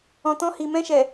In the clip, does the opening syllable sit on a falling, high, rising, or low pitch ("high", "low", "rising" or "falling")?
low